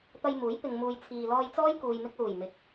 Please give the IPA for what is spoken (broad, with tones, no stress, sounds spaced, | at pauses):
t̪ ɐ˧ j m uː˨˥ j p ɪ˨ ŋ m uː˨ j t͡sʰ iː˨ l ɔː˧ j t͡s ɔː˥ j k uː˨ j m ɪ˧ k̚ l uː˨˩ j m ɪ˨ k̚